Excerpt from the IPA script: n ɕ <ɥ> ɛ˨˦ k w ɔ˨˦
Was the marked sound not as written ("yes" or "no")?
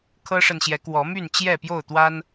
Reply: yes